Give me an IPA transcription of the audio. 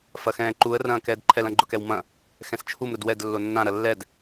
f ɐ x ɛ̃ː ǃ u ə̯ r ɐ̃ː k ɛː d ǃʰ ɛ l ɐ̃ ɡ͡ǃ ʊ k ɛ w m ɐ̃ | x ɛ̃ s t͡ʃʰ u m ɾ ʊ d w ɛ d lː o nː ã ɾ ɐ lː ɛ d

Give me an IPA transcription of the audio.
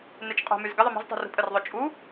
n e t͡ʃ qʼ o̤ m y z ɡ ɪ ðˤ ɪ m o̤ z tˤ ṳ r ṳ pʼ ə r ðˤ o t͡ʃʼ u

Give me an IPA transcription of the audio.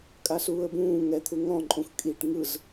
kʼ a s uː ə̯ b ũː ŋ ɛ t̪ʰ u ŋ ɔ̃ ǃʼ ũ x kʼ i ʈ ŋ ɯ z

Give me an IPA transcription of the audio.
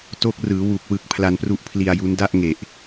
t o˦˥ k̚ r ɯː˩˦ w u˨˩ k̚ w ɯ˨˩ k̚ pʰ l a˧ n p r u˦˥ ʔ pʰ l i˧ a̯ j u˦˥ n d a˥˩ ʔ ŋ e˨˩ ʔ

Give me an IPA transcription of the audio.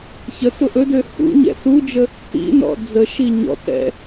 ç ə t ʊ ʔ ɵ d ø h ṵ ɲ ɛ̰ s u d͡ʒ ə | t ḭ n ɔ̰ d͡z ə ʃ i ɲ ɔ̰ t ɛ̰

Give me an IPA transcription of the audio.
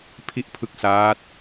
pʰ i˦˥ ʔ pʰ ɯ˦˥ k̚ s aː˦˥ t̚

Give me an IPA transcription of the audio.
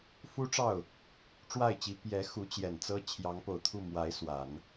f u˥ ʈ͡ʂ ɑ˥˩ ʊ̯ | ʈ͡ʂ w a˥˩ ɪ̯ t͡ɕ i˧˥ p j ɛ˧˥ x u˧˥ t͡ɕ j ɛ˨˩ n t͡s ɤ˥ t͡ɕʰ j ɑ˧˥ ŋ p o˨˩ ʊ̯ t̪ʰ u˥˩ m w a˧˥ ɪ̯ s w a˨˩˦ n

